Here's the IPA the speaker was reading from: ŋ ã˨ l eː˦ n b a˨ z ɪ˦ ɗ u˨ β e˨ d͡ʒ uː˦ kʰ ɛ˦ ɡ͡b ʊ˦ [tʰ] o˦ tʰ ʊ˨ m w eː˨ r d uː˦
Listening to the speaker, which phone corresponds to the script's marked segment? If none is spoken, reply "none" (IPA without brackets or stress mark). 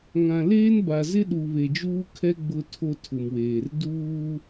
tʰ